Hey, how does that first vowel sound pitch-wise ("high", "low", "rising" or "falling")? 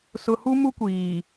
low